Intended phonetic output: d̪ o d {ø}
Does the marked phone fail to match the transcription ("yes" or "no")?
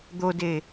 yes